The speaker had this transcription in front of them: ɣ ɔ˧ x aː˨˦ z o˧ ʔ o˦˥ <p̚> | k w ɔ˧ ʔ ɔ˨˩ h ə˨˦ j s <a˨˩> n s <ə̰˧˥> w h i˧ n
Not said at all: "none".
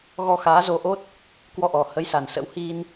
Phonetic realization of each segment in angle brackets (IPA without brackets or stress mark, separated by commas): t̚, a˨˩, ə̰˧˥